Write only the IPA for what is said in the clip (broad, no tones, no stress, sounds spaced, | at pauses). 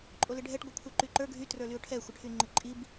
ǃʼ o l ɪ ɖʱ ɛ ʈ ɡʷ œ kʷʰ ɛ ǃ y ǃ ə˞ ɡʱ y t r ə˞ l y ʊ̯ ʈʰ ɛ xʷ ə ʈʰ y ŋ͡ǃ ɪ ǃʼ i b